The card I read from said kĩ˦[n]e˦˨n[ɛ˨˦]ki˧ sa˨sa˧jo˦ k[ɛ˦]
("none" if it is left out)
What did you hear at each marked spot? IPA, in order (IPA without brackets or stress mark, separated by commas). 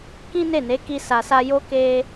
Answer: n, e˨˦, e˦